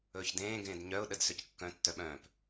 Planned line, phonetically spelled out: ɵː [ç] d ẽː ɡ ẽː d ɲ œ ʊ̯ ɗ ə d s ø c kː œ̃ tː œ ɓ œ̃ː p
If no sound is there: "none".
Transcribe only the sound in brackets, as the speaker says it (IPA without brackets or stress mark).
ç